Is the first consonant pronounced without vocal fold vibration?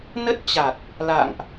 no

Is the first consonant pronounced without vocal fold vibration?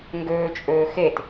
no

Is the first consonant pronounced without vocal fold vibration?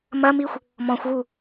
no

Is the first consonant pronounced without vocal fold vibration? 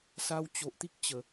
yes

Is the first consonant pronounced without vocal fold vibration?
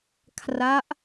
yes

